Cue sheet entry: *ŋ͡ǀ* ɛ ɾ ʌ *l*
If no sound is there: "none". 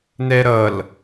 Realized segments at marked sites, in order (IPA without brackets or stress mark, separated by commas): n, l